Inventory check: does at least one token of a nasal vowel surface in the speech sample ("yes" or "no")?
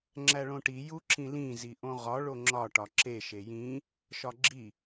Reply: yes